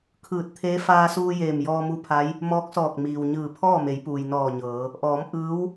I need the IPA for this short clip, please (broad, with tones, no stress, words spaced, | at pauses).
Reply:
kʰɯː˧˩t̚t̪ʰeː˧˥ faː˧suː˧ jeː˧˩mjɔː˧mu˧˥pʰa˧˥j | mɔː˧˥k̚sɔː˧˩k̚miː˩wɲɯː˧˩ pʰɔː˥˨me˩˧jpuː˩j nɔː˧˩ɲɤː˩˧ | ʔɔː˩˧m ʔɯː˧˥w